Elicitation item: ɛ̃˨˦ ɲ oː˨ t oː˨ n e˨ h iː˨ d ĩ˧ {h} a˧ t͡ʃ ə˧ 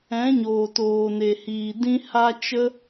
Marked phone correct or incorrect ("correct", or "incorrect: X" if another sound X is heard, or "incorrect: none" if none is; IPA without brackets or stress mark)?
correct